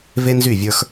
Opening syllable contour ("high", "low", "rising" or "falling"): high